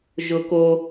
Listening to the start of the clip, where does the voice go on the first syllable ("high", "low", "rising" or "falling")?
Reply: high